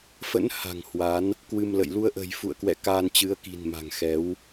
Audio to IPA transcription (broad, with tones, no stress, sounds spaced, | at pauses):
f ə̰˧˥ n h a̤˨˩ ŋ h w a˨˦ n | k w ɨ˧ m l ə̰˧˨ j l u˧ ə̯ ʔ ə̤˨˩ j f ṵ˧˨ ə̯ k w ɛ̰˧˨ k aː˧ n t͡ɕ ɨ˨˦ ə̯ k i̤˨˩ n m a̤˨˩ ŋ x ɛ˨˦ w